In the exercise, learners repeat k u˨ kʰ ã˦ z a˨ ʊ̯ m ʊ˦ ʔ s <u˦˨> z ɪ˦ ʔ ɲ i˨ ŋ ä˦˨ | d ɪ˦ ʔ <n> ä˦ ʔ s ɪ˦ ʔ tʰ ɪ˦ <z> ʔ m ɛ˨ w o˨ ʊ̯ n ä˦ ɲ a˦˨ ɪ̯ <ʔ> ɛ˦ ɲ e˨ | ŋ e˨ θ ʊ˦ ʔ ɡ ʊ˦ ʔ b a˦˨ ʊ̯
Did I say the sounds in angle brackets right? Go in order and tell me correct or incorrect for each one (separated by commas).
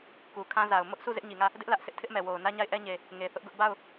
correct, incorrect, incorrect, correct